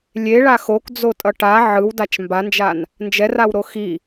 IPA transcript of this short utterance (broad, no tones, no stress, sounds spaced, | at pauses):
lʲ e ɭ a x o k d͡z o tʼ ʌ ʈ a ʕ ɯ w d a t͡ʃ m b a n d͡ʒ a n | n d͡ʒ ɛ r a w ɾ o x i